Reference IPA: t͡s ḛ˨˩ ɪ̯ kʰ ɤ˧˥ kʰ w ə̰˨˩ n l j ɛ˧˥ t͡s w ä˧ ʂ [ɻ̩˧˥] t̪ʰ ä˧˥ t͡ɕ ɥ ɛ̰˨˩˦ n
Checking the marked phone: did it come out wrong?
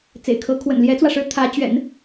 no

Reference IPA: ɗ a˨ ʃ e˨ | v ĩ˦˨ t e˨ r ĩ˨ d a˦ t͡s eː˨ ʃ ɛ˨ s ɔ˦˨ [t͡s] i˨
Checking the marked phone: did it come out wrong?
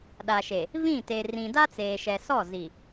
yes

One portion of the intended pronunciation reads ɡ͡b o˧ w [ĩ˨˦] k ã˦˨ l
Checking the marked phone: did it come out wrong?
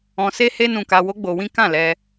yes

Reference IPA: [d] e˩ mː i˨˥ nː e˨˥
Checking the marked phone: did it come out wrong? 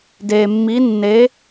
no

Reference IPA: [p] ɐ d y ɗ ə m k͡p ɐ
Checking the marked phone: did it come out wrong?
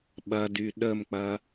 yes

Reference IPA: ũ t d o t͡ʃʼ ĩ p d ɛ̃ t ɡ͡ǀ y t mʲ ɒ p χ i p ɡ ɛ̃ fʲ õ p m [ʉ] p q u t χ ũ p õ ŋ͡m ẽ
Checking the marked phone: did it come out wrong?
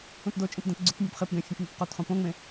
no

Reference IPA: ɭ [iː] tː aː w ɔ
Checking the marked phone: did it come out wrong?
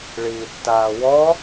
no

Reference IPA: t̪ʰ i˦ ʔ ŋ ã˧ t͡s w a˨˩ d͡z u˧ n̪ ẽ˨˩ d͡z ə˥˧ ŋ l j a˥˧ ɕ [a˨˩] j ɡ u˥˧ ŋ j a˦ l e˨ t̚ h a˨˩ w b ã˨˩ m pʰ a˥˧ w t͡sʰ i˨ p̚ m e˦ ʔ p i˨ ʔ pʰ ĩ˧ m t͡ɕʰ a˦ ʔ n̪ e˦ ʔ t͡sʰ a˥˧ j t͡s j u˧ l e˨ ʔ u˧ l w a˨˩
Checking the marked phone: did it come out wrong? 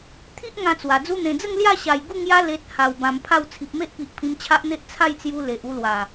no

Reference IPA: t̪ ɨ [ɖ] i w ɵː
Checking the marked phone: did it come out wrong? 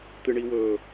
yes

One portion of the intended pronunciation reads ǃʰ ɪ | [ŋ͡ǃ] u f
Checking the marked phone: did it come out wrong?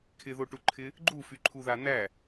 yes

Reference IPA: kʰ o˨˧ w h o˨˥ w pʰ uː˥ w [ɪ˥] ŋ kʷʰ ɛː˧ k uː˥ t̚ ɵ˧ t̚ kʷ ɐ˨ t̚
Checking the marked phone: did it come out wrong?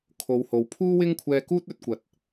no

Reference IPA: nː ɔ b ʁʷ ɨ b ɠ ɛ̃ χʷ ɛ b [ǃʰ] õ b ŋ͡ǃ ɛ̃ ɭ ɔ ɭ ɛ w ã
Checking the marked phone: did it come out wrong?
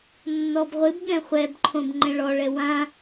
no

